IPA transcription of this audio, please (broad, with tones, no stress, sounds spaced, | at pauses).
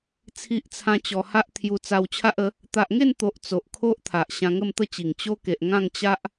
t͡sʰ i˦ ʔ t͡sʰ ã˦ t͡ɕ ɔ˧ h a˦ ʔ t̪ʰ j u˧ t͡s a˧ w t͡ɕʰ a˦ ʔ ə˨˦ | t̪ a˨ ʔ ŋ e˥˧ n t̪ o˨ ʔ t͡s o˨ ʔ kʰ o˦ ʔ t̪ʰ a˨ ʔ ɕ ã˧ ŋ ə˥˧ m t̪ ə˥˧ t͡ɕ i˨˩ ŋ t͡ɕ o˦ k e˨ ʔ ŋ ã˥˧ ŋ t͡ɕ a˦ ʔ